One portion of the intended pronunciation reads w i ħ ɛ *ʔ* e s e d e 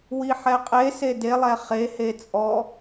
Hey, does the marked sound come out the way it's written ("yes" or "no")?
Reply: no